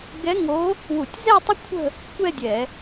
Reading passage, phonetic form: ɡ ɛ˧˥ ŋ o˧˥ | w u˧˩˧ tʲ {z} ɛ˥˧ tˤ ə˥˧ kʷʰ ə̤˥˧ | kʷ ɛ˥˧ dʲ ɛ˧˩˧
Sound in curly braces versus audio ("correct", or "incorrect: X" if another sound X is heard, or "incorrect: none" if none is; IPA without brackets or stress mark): correct